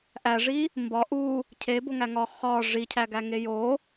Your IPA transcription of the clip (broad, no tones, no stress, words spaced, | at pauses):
ʔæʐi | mbɒ ʔu | cʰeboŋæ ŋɒ χɒ ʐicʰæɡæŋe jo